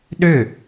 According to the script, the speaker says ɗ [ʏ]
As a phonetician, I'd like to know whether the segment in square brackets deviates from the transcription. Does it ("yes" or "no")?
no